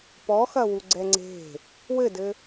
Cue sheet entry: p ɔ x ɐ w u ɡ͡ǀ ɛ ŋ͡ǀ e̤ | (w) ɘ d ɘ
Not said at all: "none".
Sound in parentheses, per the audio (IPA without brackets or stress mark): w